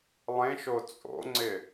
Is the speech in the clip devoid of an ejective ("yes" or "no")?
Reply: no